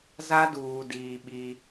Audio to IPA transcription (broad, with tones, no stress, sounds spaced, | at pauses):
z a˦ d uː˨ d iː˨ ɓ i˦